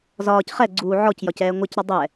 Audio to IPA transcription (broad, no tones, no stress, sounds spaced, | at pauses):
z ɒː c χ ɛ ɡ͡ǀ uː ʕ ɔ c j ɒ c ɛː ŋʷ ɛ c ɾ ɒ dˤ ɛ